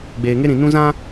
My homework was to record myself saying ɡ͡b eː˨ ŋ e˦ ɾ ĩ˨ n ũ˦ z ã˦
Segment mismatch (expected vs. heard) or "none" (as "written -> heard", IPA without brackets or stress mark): none